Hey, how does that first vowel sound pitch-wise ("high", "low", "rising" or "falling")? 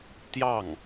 falling